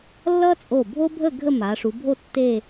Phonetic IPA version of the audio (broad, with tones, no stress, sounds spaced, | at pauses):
lː ʌ˥ t͡sʼ o˧˩ bʱ o˥ bʱ ə˥˧ ɡʱ ə˥˧ m a˩˧ ʂ u˩˧ bʱ o˥˧ tː e˥˧